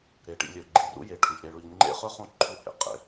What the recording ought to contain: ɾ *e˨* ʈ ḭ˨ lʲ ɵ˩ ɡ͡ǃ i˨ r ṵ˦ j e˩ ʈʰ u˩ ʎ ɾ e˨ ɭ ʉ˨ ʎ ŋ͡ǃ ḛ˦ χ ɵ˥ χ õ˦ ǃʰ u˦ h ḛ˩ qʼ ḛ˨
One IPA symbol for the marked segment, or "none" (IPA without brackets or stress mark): e˩